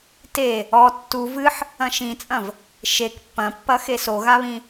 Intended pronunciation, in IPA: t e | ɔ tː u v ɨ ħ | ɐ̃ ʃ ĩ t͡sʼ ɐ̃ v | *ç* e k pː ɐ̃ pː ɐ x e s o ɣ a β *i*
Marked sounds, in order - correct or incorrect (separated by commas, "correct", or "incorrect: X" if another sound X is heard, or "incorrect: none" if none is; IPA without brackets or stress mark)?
incorrect: ʃ, incorrect: ĩ